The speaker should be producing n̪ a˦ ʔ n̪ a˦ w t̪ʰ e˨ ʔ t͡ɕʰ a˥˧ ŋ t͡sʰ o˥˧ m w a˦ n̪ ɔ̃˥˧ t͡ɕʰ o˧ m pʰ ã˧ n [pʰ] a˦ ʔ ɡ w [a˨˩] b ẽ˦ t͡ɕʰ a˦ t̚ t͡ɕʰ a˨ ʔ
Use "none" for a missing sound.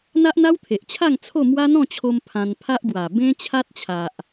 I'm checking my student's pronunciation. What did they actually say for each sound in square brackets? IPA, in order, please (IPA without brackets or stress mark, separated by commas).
pʰ, a˨˩